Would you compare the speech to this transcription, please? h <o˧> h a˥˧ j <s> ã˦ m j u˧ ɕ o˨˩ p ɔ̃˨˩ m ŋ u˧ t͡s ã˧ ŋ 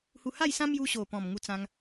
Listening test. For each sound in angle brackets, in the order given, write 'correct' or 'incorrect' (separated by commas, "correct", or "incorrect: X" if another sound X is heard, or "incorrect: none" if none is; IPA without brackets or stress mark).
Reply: incorrect: u˧, correct